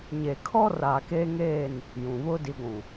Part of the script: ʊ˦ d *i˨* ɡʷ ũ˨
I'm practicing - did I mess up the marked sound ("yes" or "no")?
no